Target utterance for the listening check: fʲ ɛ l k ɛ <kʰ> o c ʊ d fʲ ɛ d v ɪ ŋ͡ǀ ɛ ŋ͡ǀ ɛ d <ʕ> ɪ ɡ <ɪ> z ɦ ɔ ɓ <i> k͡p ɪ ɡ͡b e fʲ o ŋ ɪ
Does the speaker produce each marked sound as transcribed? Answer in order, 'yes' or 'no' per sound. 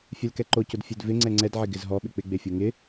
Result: no, yes, yes, no

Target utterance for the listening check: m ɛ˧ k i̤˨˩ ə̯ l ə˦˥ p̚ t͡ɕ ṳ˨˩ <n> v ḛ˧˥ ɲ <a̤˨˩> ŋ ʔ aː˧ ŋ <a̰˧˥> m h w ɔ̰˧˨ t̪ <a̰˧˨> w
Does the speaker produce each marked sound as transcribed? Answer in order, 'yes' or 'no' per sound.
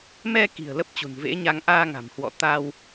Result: yes, no, no, no

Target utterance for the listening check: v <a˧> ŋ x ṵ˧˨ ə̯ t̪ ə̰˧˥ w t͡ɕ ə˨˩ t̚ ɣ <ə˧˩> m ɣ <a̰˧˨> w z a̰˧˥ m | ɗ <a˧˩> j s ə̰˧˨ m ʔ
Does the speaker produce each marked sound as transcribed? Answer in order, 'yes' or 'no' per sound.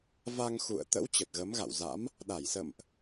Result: yes, no, yes, yes

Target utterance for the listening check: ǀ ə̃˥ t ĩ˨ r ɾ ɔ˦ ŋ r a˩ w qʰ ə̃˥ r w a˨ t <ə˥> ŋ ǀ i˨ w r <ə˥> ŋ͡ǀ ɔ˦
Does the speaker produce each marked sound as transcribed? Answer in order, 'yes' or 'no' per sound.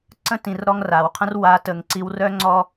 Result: no, no

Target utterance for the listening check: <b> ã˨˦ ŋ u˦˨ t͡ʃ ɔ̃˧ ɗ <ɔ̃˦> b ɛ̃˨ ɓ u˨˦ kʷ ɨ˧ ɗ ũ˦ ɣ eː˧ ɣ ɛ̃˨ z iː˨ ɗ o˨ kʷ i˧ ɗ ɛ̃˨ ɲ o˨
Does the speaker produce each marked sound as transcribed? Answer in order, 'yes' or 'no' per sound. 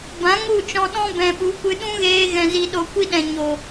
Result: yes, yes

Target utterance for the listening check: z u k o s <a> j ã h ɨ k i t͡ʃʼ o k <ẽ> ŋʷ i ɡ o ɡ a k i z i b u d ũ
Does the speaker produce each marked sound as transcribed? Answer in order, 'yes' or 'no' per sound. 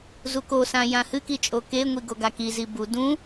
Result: no, no

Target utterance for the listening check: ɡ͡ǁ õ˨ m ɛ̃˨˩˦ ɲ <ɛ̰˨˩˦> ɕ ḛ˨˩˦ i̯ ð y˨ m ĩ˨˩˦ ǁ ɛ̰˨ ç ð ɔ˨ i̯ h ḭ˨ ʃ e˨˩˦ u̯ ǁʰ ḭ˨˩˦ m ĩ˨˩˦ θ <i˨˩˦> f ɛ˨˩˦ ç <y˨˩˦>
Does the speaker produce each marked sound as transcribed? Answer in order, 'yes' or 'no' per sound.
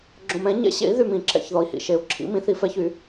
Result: yes, yes, yes

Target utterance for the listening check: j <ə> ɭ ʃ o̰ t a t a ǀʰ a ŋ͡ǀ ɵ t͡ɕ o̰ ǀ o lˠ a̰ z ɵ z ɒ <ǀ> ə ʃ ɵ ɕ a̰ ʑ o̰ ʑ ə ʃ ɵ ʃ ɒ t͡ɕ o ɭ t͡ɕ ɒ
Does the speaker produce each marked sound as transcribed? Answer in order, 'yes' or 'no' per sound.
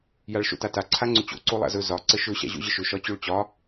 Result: no, yes

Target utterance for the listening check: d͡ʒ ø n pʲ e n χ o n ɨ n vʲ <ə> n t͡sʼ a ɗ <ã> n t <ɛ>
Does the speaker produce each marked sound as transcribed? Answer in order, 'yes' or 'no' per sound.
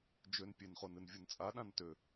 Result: no, yes, no

